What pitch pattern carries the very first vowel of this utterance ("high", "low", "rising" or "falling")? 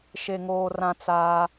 low